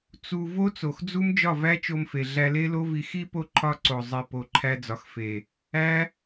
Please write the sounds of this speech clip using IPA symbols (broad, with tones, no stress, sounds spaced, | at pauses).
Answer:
t͡s u˧ v o˦ t͡s o˨ x d͡z u˦ m d͡ʒ ɒ˦˨ v æ˦ t͡ʃ o˧ m f e˨ ɮ æ˧ l e˦ l o˦ v i˧ x i˦ p o˦ ǃʰ ɒ˦˨ ǀ o˨ zˤ i˨ p o˨ ǃʰ æ˧ d͡z ɒ˨ x f e˨ | æ˦